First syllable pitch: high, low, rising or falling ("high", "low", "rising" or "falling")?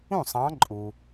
falling